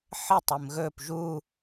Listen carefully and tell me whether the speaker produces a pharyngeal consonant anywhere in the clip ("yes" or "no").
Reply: yes